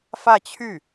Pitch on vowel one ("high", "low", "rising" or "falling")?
falling